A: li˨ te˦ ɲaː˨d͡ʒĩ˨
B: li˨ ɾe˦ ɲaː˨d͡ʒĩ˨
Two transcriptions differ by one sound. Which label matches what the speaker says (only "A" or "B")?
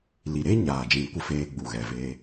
B